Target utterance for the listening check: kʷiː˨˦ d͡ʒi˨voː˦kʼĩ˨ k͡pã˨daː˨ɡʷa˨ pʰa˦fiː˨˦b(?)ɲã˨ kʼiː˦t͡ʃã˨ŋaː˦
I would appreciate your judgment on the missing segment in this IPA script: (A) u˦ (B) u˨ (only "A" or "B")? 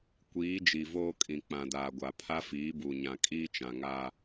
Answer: B